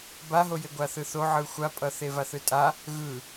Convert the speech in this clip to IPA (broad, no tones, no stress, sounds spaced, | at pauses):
b a ɦ o j e ɡʷ a θ ɯ θ o ʕ ɯ xʷ a pʼ ʌ θ e v a θ ɯ tʼ a | ɣ ɯ